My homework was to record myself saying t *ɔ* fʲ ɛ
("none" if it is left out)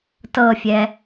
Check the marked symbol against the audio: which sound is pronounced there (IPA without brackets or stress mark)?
ɤ